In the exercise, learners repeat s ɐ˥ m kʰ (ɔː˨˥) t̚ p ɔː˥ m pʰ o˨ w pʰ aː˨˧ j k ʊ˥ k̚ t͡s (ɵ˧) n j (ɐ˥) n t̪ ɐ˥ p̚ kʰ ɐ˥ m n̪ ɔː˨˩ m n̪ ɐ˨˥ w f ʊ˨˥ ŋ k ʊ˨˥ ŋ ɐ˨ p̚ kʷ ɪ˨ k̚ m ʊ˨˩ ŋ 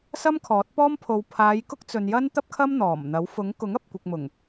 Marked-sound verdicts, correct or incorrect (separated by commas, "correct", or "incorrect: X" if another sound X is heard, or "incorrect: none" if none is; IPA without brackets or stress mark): correct, correct, correct